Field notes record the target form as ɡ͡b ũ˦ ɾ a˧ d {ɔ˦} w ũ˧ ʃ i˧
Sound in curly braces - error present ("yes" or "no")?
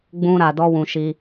no